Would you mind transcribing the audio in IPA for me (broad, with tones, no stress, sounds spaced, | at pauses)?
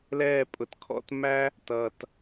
l ɛː˦˨ pʼ ʊ˨ t kʰ ɔ̰˦˨ t m æ˦ | t ʌː˨ t